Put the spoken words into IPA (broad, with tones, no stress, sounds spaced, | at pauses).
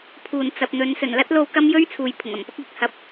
pʰ uː˨˩ n t͡s ɐ˨ p̚ n̪ ɵ˨˧ n s ɵ˨˩ n l ɐ˥ t̚ l o˧ w k ɐ˥ m j ɵ˥ ɥ t͡sʰ uː˨ j pʰ ʊ˨˩ ŋ ɐ˨˩ m p ɐ˥ k̚ l ɪ˨ k̚ h ɐ˨˥ p̚